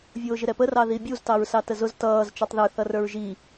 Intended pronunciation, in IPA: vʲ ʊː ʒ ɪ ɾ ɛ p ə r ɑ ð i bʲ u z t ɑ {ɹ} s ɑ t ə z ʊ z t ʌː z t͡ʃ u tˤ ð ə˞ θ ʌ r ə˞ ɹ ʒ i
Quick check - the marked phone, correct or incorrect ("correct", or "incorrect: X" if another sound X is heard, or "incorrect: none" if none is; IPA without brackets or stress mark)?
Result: correct